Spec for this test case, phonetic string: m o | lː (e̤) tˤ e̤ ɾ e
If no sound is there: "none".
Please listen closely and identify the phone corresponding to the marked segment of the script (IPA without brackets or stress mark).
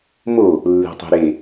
e̤